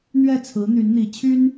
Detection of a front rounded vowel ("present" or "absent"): present